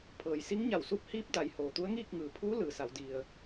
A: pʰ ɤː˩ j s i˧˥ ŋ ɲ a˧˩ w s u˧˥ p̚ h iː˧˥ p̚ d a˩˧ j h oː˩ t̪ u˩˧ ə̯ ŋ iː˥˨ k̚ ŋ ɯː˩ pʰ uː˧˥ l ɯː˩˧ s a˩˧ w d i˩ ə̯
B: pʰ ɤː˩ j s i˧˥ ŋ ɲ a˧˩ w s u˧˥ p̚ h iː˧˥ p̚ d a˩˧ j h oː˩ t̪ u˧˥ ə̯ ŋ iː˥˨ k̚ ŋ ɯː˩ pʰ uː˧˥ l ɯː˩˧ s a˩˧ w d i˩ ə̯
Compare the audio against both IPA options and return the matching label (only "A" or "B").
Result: B